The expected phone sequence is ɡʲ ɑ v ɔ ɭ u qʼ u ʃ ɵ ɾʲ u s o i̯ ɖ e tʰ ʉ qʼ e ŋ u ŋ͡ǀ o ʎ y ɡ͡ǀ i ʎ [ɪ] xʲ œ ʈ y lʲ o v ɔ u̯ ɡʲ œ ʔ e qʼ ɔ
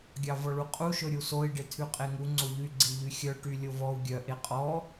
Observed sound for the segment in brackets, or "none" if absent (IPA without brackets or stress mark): y